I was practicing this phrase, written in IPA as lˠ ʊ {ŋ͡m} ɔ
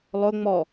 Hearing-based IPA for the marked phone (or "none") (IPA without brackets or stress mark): ŋ͡m